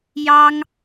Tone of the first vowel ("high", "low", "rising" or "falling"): high